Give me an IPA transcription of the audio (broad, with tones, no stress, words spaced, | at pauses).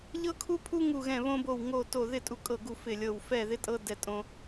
ʎɤ˦kʰu˦pʰu˦ ŋu˦˨ɣɛ̃˦˨βõ˦bo˦˨w ŋo˦˨ to˦˨ ðɪ˦˨ tʼu˦˨kʼɤ˦˨ɡu˦˨ fɪ˦˨lʲɤ˦˨w fɛ˦˨ðɪ˦tʼɤ˦ dɛ˦tʼõ˦